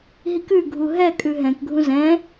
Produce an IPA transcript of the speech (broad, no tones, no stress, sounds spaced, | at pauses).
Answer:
ɦ i k ʉ ɡʱ u ɦ ɛ kʼ ʉ ɦ ɛ̃ k ɡʱ ũ z ɛ̃